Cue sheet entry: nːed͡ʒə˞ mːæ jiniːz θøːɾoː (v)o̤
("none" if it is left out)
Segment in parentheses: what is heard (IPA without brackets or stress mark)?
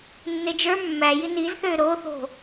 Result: θ